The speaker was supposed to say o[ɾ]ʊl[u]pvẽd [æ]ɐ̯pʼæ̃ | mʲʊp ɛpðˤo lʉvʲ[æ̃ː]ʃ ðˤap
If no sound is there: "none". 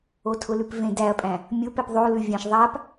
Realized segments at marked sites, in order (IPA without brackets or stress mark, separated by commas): tʰ, ʉ, æ, æ̃